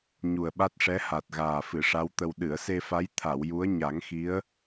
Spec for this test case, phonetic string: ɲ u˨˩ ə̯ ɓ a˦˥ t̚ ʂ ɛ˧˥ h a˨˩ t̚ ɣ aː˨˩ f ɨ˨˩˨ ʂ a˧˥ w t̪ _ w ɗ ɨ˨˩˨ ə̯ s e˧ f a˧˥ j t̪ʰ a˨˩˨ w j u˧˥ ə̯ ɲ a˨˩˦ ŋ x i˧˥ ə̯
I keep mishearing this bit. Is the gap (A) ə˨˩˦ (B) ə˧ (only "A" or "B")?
B